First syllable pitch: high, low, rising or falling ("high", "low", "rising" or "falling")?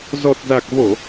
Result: low